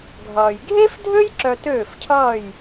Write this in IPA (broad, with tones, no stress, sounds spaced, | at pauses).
ɡʱ ʌː˩ j ɡʱ e˥ f dʱ ø˥ j ǁ œ˧ t øː˥˩ f cʰ ʌː˥˩ j